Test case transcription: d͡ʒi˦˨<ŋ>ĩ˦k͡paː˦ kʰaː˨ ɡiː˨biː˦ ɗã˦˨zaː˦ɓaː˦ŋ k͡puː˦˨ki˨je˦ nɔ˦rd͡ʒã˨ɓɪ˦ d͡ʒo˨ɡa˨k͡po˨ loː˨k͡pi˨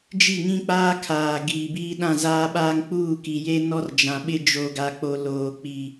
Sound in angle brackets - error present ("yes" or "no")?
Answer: no